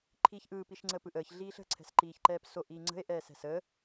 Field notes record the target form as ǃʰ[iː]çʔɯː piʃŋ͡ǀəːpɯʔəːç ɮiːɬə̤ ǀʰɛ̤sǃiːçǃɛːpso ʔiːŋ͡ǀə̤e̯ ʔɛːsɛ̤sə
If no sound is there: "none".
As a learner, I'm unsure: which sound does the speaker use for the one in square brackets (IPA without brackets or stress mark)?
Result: iː